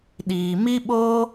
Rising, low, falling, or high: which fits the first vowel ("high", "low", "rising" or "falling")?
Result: low